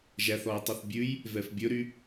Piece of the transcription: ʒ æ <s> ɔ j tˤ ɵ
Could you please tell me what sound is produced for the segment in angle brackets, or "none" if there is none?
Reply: θ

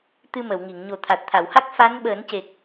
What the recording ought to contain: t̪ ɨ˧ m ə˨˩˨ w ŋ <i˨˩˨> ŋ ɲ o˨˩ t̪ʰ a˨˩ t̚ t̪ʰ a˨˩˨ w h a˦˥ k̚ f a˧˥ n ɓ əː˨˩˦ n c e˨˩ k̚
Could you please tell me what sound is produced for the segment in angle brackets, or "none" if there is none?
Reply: i˨˩˨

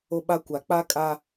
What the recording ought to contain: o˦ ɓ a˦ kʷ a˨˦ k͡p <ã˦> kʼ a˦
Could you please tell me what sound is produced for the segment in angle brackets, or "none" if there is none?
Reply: a˦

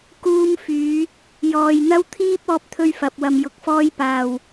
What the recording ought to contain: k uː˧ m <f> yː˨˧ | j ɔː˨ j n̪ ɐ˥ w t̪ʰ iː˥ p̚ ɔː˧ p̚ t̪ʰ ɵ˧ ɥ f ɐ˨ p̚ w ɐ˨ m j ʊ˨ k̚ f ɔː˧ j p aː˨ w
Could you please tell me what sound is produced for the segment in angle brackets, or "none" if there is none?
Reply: f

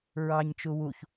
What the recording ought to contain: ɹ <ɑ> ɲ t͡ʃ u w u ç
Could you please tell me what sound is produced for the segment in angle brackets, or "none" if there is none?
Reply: ɑ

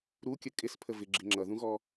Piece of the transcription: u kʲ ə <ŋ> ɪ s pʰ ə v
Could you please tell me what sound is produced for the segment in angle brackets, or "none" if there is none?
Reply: kʼ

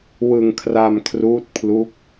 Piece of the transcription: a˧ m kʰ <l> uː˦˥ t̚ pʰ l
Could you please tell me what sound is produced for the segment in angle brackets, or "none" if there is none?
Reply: r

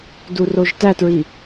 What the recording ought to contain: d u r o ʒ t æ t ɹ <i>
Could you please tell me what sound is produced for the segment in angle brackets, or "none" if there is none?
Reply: i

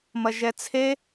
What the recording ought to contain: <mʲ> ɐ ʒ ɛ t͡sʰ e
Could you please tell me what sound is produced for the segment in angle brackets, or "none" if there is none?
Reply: m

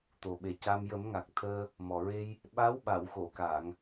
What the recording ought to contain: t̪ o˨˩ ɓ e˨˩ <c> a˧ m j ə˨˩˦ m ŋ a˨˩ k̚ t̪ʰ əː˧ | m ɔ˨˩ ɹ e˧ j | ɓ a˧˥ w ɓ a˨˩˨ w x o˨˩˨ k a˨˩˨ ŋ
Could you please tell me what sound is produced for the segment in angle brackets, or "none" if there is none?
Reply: c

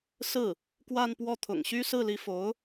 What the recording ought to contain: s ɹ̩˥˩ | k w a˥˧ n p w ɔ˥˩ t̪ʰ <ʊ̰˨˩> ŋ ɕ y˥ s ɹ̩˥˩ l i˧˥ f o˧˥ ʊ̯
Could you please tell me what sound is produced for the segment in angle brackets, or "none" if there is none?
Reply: ʊ̰˨˩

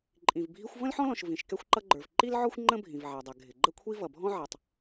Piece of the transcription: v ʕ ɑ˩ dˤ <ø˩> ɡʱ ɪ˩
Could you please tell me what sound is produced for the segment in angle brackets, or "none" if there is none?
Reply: ɛ˩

